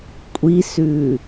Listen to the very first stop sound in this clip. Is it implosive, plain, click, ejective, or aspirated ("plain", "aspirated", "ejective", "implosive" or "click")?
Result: ejective